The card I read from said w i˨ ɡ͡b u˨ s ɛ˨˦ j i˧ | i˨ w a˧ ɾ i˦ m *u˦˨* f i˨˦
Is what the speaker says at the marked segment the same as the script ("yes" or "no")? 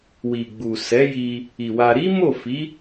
no